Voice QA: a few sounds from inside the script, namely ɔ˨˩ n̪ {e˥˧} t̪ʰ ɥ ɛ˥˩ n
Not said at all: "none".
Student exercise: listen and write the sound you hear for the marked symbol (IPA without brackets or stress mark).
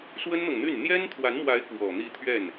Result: i˥˧